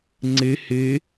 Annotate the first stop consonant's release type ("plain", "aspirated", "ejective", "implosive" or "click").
click